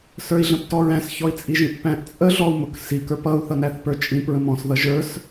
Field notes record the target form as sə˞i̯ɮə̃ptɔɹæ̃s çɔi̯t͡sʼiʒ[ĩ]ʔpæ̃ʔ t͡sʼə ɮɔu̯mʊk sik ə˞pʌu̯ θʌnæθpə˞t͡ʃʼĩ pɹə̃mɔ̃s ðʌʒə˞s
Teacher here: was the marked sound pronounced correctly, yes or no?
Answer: yes